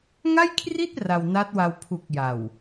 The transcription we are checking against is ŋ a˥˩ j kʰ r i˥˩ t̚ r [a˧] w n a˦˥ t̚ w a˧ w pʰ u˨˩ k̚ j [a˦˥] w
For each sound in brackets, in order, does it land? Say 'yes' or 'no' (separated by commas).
yes, no